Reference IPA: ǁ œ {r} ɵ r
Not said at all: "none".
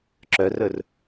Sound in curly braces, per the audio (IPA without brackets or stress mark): r